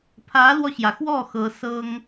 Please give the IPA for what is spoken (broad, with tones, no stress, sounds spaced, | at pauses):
pʰ ä˧˥ l w ɔ˧ ɕ j ä˩ x w ɔ˥˩ x ɤ˧˥ s ɤ˥ ŋ